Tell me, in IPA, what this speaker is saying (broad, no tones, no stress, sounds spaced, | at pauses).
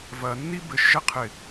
v ɐ nː i b ɘ ʃ ʒ ɛ qʰ ɪ